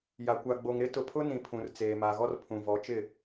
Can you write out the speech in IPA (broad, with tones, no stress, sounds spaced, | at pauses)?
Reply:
j a˨ kʷ a˨ ɡ͡b o˨ ŋ ɾ ɪ˦ t ʊ˨ pʰ ʊ˦ n ĩ˨ pʰ ũ˨ r t͡s eː˨ m a˨ ɣ ɔ˦ r pʰ ũ˨ v ɔ˨˦ t͡ʃ ɪ˦˨